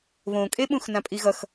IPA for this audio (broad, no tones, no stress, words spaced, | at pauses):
βõkʼe ɓũxnãpʼiɣʌx